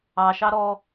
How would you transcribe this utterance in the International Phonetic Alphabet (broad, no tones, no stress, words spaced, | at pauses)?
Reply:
ɑʃɑ ɾɔ